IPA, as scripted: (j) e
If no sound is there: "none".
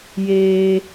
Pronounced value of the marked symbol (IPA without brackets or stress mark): j